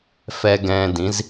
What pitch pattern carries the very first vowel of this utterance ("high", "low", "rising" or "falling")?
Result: low